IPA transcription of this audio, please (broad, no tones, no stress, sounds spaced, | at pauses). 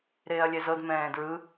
ɾ eː ɐ̯ lʲ ɛ z ɤ d m ɛ̃ː d ɹ ɯ